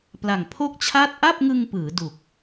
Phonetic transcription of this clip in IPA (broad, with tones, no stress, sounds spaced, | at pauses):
p l a˨˩ ŋ pʰ o˥˩ k̚ t͡ɕʰ a˥˩ t̚ ʔ a˥˩ p̚ ŋ ɯ˧ ŋ p ɯː˩˦ d u˨˩ k̚